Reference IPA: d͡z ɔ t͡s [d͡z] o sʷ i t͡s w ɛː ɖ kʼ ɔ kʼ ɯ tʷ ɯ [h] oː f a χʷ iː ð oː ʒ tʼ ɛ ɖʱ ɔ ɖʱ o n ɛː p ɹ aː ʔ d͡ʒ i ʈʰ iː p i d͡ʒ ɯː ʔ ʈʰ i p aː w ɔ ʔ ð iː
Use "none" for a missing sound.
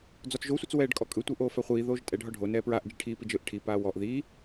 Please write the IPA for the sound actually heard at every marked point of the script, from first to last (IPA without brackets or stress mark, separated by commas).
ʒ, ʔ